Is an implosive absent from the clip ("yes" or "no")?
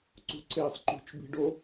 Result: yes